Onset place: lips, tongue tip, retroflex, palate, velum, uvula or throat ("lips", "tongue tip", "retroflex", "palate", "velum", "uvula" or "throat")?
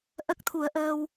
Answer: throat